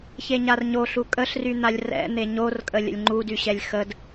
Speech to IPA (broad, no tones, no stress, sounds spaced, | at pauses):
ç e ɲ a r ɲ o ɬ u kʼ ə ɬ r y n̪ a lʲ r ɛ̰ n̪ e ɲ o r kʼ ə lʲ ə̰ lʲ ŋ͡ǃ u d y ɕ ɛ lʲ x ə d